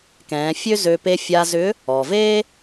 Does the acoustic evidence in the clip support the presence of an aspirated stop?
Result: no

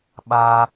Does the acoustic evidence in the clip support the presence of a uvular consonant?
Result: no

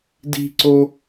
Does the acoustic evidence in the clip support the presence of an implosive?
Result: no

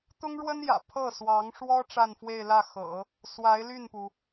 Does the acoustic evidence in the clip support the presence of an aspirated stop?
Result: yes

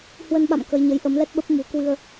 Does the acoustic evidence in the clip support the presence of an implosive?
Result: yes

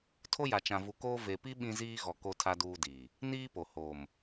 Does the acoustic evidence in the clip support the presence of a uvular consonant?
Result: no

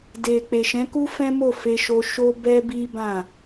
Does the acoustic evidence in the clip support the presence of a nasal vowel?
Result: yes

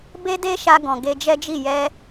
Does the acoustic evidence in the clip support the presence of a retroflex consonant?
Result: no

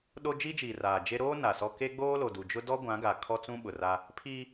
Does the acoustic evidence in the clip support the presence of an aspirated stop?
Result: yes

